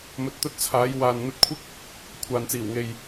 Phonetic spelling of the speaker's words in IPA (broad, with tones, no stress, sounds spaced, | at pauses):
m ɵ˧ t̚ t̪ ɵ˥ t̚ t͡sʰ aː˨˥ j w aː˨ n n̪ ɵ˧ t̚ kʷʰ ɪ˥ k̚ | kʷʰ aː˨ n t͡s iː˨˩ w ŋ e˨ j